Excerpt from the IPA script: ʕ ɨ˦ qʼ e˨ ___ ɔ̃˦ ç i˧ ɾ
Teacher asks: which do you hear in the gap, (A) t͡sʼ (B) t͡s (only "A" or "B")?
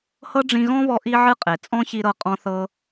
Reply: A